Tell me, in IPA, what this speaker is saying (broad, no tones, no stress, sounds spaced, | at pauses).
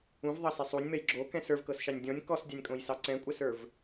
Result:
ũ v ðˤ ɑ s ɛ sˤ u nʲ m ɛ j ɡ͡ǁ o k ɛ̃ s ə˞ v k ɤ s ʃ ɑ nʲ dʲ ɔ̃ nʲ k ɔ s dʲ ɑ nʲ kʼ õ j s ɑ ǀ ɛ̃ kʷʼ ɛ s ə˞ v